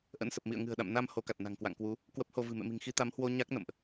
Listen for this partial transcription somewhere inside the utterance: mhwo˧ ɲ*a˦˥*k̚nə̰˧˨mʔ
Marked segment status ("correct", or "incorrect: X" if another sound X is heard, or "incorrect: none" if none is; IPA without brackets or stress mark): correct